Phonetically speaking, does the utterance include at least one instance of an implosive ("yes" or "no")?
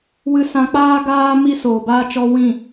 no